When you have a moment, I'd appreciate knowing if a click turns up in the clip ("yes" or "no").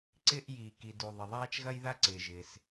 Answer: yes